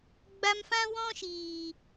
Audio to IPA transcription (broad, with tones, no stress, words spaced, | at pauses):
ɡ͡ba˧mfã˦wɔ̃˦ ʃiː˨